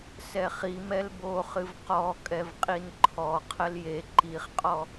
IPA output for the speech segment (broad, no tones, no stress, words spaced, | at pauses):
sɛχimɛl boχɨv qɔ kʼɛvqʼinǃʰɔqʰəl je ǃiχqʼɔ